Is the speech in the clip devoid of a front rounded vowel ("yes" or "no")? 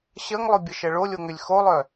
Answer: no